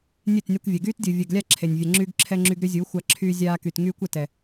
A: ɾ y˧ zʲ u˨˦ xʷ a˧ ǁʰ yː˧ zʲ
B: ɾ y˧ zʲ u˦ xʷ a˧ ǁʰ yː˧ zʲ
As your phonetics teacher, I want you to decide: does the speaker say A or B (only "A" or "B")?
A